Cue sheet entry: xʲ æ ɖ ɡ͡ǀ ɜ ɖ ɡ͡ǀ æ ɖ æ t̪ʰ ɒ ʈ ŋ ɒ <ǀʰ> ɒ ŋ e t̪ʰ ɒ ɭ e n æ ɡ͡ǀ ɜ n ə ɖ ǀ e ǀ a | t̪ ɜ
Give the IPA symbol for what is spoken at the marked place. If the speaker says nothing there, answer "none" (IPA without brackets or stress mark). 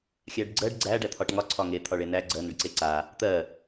ǀʰ